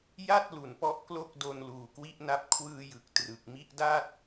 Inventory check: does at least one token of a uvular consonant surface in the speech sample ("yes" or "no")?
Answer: no